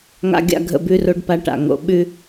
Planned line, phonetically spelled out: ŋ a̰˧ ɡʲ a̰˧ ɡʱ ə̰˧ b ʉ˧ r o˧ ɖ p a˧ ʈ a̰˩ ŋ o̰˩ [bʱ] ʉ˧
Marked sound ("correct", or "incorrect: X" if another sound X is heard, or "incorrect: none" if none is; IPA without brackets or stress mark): incorrect: ɓ